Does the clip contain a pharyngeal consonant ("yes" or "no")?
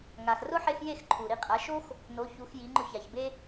yes